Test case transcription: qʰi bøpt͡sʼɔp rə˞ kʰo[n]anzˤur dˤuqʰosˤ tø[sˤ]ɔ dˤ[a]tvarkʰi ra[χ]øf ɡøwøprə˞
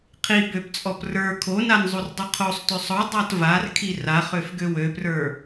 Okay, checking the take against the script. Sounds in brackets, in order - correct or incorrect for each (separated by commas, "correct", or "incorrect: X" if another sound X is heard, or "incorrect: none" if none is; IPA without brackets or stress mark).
correct, correct, correct, correct